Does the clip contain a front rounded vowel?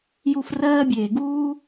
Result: no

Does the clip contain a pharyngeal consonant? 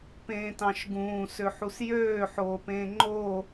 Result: yes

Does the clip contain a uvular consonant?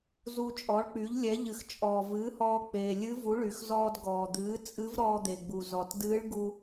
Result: no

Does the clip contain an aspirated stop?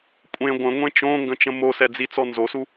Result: no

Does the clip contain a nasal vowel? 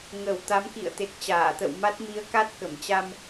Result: no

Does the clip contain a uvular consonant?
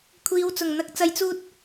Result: no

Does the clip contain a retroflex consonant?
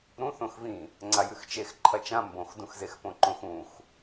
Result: no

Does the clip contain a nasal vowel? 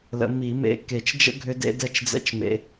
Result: no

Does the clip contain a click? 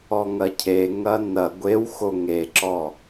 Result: yes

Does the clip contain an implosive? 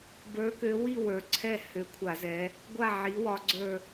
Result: no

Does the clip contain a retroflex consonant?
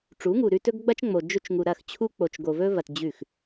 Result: yes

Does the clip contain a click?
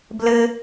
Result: no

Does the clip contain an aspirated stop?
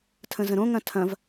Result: yes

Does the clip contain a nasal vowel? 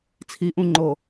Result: yes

